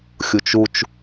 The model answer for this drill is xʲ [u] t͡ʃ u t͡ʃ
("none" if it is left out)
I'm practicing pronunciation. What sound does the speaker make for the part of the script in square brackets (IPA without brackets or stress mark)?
u